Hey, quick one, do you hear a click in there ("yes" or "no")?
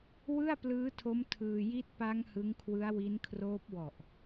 no